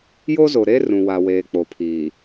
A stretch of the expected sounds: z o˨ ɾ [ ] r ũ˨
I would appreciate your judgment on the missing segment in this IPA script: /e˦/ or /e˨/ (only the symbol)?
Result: e˦